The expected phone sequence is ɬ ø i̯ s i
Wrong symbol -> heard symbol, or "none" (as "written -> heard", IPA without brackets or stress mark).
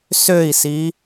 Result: ɬ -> s